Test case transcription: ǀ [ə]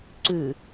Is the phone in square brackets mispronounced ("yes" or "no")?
yes